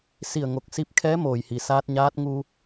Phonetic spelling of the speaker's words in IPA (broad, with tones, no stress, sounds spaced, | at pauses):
s i˧˩ ə̯ ŋ o˧˩ k̚ s i˧ p̚ kʰ ɛː˧˥ m oː˩ j h i˩ s aː˧ t̚ ɲ aː˧˥ t̚ ŋ uː˧